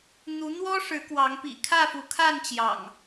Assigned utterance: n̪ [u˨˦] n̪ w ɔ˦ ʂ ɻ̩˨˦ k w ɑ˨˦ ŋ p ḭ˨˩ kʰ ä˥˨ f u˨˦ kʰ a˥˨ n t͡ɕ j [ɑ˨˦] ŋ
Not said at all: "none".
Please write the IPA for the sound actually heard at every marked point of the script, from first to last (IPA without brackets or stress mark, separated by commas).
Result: u˨˦, ɑ̰˨˩